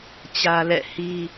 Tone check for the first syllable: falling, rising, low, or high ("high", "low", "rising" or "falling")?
high